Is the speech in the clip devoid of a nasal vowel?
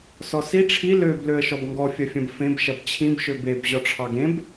no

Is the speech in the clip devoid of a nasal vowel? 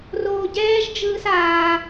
yes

